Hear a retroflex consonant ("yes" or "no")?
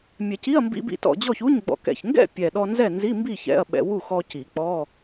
no